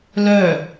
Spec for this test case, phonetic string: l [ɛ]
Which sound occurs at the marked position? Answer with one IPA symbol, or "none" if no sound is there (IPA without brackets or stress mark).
œ